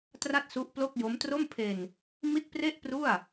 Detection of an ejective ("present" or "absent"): absent